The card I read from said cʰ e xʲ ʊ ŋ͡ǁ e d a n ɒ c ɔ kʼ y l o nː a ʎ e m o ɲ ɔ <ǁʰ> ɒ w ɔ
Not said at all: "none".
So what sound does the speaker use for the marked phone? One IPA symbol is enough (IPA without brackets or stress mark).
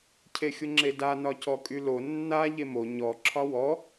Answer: ǁʰ